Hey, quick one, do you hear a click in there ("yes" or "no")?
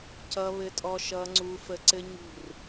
yes